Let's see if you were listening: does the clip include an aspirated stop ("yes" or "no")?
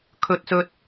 yes